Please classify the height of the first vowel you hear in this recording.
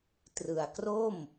high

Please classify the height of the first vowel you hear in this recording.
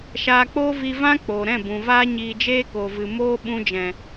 low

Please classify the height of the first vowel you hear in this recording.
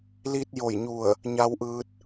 high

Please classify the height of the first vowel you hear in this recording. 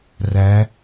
low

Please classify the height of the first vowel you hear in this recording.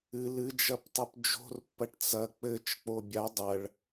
high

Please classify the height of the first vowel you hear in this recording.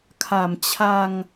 low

